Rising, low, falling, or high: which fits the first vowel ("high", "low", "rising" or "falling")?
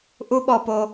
high